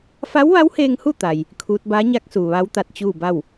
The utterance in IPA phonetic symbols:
f a˧˥ w ʋ a˧˥ w h eː˧ ŋ h u˥˨ t̪ a˧ j | kʰ uː˧˥ t̚ b aː˧˥ ɲ a˧˥ k̚ s uː˩ ʋ a˧˥ w t̪ a˧ t̚ t͡ɕ uː˥˨ b a˥˨ w

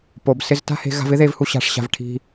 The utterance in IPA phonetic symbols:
p o˩ b s ɪ˧ z t a̤˥ h e̤˧ ɣ a̤˧ v ɪ˥ ð e˧ v h u˧ ɕ a̤˧ ʂ ɕ a̤˧ v ʈʰ i̤˧

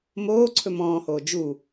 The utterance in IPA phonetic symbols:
m oː ǀʰ ɵ m ɔ̃ː h oː d͡ʒ u

